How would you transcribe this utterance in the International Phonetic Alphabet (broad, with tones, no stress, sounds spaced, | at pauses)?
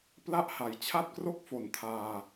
p l a˥˩ ʔ h a˨˩ j t͡ɕʰ a˥˩ t̚ k r o˥˩ k̚ f o˨˩ n tʰ aː˧